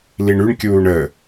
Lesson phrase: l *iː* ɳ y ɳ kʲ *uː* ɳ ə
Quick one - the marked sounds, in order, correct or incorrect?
incorrect, correct

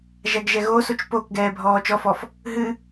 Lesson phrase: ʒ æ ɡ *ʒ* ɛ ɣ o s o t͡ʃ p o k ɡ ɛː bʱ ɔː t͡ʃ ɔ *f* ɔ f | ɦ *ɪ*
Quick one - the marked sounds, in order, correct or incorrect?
correct, correct, incorrect

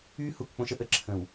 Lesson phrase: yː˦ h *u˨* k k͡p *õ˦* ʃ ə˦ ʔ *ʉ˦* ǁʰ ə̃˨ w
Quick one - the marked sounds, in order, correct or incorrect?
correct, correct, incorrect

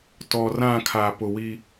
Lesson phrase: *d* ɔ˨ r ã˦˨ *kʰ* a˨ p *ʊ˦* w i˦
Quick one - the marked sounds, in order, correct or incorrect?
incorrect, correct, incorrect

